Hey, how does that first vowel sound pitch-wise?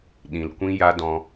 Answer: low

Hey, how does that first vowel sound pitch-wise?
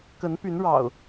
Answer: rising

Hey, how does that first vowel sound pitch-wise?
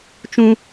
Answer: high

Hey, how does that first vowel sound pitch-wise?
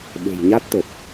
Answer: low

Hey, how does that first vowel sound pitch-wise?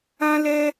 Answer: high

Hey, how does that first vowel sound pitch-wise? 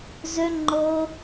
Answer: high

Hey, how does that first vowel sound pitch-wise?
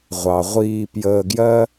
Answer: low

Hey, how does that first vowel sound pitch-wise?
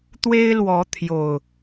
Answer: high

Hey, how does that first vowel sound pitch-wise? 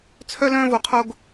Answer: high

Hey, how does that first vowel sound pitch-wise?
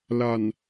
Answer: low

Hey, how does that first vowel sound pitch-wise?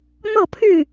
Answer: falling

